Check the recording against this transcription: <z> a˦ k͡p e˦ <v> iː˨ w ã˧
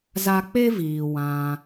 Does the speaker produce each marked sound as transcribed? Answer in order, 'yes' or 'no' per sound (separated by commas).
yes, yes